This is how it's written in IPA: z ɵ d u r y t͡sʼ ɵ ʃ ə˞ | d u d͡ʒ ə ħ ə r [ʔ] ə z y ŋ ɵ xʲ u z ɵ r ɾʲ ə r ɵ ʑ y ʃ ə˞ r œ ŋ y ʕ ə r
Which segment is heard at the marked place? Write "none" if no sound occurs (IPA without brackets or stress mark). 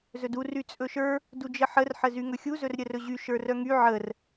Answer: ħ